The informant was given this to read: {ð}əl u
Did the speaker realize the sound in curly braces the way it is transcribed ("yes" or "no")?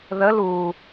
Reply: yes